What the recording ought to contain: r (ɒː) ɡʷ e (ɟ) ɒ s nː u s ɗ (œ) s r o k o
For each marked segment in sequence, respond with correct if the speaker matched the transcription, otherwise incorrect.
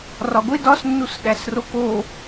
incorrect: ɒ, incorrect: d, incorrect: æ

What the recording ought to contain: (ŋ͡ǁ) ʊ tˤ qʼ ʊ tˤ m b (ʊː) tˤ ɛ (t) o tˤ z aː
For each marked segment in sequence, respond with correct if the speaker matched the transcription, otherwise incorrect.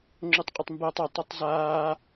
correct, incorrect: əː, incorrect: tˤ

